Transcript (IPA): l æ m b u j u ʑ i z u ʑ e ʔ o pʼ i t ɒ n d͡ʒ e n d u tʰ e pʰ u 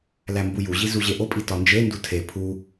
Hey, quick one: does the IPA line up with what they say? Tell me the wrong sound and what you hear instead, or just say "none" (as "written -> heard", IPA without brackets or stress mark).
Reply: none